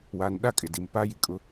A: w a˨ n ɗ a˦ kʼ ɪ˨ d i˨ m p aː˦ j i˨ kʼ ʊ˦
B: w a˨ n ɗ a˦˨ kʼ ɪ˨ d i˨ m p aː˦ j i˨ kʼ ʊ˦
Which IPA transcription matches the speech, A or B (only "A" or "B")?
B